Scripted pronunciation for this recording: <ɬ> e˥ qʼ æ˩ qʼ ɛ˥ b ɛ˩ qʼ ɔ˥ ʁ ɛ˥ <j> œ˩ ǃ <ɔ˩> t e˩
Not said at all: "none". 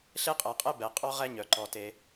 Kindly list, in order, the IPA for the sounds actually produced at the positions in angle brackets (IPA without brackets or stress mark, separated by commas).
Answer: ɬ, ɲ, ɔ˩